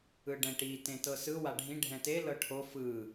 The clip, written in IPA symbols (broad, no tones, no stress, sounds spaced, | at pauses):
ɯ ɖ ɛ̃ ʈ i t ẽ t ɤ s ɯ w a ɖʱ ĩ ɖʱ ɛ̃ t e l ɤ ʈʰ o f ɯ